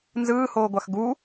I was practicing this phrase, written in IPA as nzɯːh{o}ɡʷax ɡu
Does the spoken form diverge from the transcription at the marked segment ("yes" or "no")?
yes